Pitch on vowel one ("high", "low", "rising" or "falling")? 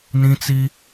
high